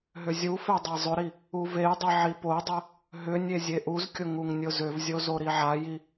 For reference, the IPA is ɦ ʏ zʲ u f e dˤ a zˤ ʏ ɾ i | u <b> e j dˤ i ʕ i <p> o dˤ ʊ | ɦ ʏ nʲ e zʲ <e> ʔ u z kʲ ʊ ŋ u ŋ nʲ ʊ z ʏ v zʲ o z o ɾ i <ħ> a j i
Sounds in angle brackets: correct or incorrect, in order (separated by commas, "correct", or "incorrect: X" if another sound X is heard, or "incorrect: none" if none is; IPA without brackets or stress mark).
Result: incorrect: v, correct, correct, incorrect: ʕ